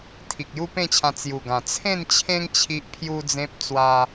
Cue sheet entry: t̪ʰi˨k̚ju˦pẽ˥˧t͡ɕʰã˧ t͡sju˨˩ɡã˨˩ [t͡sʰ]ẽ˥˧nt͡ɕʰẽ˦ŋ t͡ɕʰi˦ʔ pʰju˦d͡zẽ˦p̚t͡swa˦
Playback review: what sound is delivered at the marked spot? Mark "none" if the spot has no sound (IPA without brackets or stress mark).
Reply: t͡sʰ